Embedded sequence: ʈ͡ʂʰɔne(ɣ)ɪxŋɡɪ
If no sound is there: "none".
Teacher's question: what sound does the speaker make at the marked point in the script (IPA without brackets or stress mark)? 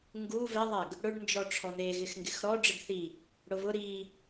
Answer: ɣ